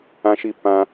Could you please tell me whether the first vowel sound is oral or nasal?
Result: nasal